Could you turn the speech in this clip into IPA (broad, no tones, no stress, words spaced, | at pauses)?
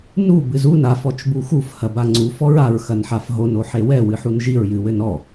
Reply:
nu bɨzun af ɔt͡ʃbuxuf hɐbaŋ͡ǀu fɔɹaɹ xɐnħafɦon oħewɛ wɨħunʒiɹ jɨwɘnɔ